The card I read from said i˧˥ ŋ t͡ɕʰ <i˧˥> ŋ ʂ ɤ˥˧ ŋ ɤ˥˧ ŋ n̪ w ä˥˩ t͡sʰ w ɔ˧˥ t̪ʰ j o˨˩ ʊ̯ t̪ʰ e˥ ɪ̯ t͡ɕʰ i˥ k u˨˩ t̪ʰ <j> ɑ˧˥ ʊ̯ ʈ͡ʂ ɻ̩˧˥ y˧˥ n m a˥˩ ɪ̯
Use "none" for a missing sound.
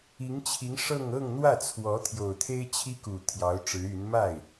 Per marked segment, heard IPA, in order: i˧˥, j

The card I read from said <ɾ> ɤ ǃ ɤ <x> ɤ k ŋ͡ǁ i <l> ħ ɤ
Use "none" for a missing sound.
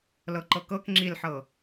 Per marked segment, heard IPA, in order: l, k, l

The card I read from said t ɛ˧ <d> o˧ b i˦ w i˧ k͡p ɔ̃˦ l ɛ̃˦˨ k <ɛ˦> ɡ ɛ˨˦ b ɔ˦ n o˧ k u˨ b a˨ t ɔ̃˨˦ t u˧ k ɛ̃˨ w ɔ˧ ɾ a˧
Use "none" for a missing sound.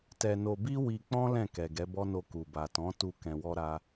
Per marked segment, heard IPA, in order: n, ɛ˨

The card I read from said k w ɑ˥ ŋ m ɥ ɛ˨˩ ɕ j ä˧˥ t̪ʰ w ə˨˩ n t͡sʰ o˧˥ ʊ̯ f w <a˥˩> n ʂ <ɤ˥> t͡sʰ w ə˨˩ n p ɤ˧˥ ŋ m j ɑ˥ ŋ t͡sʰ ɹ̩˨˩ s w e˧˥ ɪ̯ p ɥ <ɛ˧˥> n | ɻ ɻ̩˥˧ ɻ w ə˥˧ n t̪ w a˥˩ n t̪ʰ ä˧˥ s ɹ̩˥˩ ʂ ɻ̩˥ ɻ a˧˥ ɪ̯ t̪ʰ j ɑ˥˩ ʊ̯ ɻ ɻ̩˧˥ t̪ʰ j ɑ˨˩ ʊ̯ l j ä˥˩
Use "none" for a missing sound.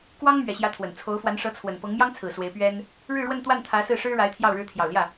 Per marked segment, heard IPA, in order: a˧˥, ɤ˧˥, ɛ˥

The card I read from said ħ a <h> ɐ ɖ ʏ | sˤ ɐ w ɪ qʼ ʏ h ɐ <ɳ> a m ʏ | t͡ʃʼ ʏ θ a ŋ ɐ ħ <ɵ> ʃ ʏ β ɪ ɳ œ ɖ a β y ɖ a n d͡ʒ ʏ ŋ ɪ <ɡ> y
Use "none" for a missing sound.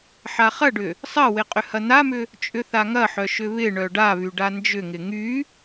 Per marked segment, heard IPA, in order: χ, n̪, œ, ŋ

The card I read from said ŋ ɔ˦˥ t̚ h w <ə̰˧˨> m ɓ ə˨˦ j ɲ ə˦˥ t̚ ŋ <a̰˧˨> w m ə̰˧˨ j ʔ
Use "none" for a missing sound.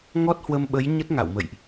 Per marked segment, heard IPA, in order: ə˧, a̰˧˨

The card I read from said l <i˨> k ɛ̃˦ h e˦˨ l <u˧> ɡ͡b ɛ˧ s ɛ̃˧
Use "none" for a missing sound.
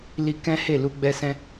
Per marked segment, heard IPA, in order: i˧, u˧

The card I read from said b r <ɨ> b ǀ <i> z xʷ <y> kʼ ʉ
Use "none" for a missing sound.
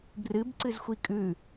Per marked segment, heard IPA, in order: ɨ, ɨ, i

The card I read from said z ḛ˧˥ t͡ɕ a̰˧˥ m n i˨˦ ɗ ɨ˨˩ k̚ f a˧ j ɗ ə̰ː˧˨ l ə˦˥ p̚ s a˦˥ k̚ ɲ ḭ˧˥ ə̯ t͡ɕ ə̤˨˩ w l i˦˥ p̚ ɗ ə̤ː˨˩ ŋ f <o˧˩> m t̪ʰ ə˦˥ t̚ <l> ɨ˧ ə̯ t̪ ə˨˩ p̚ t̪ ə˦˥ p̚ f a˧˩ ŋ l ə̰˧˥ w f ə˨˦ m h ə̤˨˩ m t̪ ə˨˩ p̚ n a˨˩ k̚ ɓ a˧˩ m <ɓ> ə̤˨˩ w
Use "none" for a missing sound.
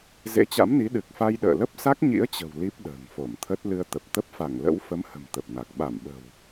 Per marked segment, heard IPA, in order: o˧˩, l, ɓ

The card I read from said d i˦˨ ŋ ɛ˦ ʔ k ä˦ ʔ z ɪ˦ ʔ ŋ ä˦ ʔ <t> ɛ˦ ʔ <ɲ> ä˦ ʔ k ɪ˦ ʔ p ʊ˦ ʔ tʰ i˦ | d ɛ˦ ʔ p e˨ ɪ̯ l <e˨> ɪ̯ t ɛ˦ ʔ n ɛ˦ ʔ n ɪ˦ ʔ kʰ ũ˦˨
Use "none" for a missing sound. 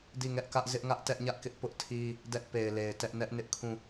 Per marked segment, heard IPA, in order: t, ɲ, e˨

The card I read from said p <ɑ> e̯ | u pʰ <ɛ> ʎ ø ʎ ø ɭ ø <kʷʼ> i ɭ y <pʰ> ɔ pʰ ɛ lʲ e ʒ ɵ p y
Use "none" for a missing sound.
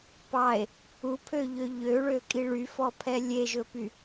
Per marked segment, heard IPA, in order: ɑ, ø, kʼ, f

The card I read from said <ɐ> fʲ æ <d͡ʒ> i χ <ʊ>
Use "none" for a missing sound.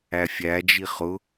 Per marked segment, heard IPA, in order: æ, d͡ʒ, ʊ

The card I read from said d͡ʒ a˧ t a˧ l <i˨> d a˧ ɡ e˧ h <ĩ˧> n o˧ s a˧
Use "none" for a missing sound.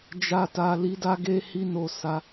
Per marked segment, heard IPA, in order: i˧, i˧

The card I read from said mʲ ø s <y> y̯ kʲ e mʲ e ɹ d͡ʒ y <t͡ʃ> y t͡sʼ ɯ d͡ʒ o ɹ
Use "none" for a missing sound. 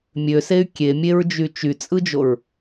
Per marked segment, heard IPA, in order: e, t͡ʃ

